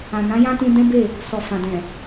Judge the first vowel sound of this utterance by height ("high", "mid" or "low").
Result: low